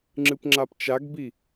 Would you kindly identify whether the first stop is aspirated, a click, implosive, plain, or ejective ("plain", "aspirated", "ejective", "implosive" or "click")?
click